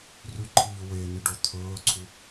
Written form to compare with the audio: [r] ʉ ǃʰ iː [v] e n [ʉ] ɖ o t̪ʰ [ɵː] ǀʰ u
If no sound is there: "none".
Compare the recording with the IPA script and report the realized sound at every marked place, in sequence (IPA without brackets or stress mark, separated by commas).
r, w, ɨ, ɵː